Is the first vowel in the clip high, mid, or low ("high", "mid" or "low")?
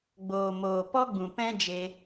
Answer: mid